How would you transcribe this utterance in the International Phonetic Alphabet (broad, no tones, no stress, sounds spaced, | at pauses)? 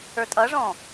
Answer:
ə˞ tʼ ʌ ʐ ɔ̃